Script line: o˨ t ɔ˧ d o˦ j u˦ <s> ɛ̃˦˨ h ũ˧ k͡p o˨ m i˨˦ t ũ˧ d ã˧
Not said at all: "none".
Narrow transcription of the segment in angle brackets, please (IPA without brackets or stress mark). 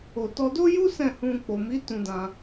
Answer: s